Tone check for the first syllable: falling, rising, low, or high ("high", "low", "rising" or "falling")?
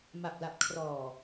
low